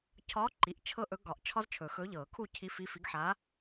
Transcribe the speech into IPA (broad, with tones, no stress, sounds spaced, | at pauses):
cʰ ɒː˧˥ ǃ i˩˧˩ ʔ t͡ʃʰ ɤ˥ ʔ ɵ˧˥ ɡ ɒ˨˩˦ ʔ t͡ʃʰ ɒ˥ z t͡ʃʰ ɵː˨˩˦ x ɵ˧˥ ʎ ɤː˨˩˦ kʰ u˥˧ cʰ i˧˥ f i˧˥ f i˧˥ ɡ ħ a˧˥